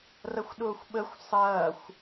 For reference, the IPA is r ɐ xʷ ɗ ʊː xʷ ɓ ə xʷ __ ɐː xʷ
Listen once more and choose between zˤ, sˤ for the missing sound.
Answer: sˤ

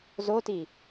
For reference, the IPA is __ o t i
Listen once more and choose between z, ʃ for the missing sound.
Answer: z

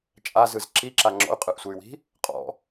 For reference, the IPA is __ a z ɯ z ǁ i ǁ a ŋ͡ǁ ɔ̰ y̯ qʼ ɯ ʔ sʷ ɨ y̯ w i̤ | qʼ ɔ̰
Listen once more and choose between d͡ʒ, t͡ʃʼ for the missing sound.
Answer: t͡ʃʼ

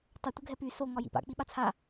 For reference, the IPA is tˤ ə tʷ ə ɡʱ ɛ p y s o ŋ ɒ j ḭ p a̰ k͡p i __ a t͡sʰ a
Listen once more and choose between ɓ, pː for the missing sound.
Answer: ɓ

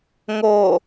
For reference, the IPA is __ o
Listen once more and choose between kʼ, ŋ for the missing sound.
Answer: ŋ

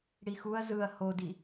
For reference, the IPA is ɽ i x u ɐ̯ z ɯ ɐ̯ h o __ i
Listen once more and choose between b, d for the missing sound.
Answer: d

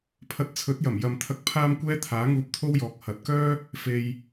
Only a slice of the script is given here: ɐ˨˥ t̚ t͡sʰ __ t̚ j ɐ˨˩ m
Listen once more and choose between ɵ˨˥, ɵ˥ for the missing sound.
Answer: ɵ˨˥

